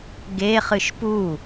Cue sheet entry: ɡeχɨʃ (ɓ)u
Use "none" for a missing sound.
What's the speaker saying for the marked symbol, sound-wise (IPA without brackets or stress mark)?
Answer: p